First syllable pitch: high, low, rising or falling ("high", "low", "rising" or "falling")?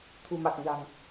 low